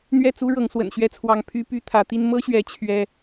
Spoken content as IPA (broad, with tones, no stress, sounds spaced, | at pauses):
n̪ ɥ ɛ˥˨ t͡s u˦ ɻ ɤ˨˦ ŋ s w ə̰˨˩ n ɕ ɥ ɛ˦ t͡sʰ w ɑ˨˦ ŋ pʰ y˦ p y˦ t̪ʰ ä˨˦ t̪ i˦ n m ɤ˦ ɕ ɥ ɛ˨˦ t͡ɕʰ ɥ ɛ˦